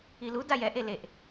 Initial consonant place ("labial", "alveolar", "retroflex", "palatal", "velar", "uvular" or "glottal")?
alveolar